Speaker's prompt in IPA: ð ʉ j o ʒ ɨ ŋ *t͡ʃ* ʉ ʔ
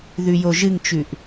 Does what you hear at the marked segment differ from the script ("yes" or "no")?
no